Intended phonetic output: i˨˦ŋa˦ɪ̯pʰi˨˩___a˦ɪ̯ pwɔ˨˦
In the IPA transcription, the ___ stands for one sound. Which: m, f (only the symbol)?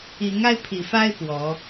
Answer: f